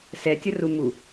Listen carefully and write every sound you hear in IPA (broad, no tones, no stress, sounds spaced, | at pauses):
s ɛ tʲ ə r u m u